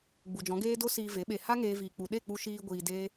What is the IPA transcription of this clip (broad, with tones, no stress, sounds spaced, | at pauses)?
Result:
ɡ͡b u˨ d͡ʒ ɔ̃˨˦ ɡ eː˦ d o˦ s iː˧ v e˨˦ ɓ e˧ h a˦ ŋ eː˦ v iː˧ k͡p u˧ ɗ e˦˨ k͡p u˧ ʃ iː˧ ɡʷ iː˧ d eː˦